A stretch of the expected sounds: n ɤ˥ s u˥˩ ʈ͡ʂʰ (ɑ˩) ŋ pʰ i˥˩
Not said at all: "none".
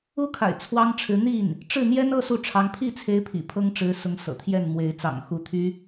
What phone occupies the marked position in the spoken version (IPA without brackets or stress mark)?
ɑ˧˥